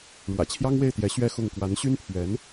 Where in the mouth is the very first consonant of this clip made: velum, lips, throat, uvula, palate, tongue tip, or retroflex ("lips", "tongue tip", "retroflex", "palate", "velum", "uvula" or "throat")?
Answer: retroflex